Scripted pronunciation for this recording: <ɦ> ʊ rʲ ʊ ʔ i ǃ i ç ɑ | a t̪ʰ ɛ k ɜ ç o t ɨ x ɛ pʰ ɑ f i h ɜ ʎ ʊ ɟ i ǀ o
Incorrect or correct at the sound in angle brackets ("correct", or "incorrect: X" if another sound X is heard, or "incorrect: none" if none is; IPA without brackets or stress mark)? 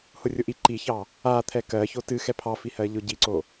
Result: incorrect: h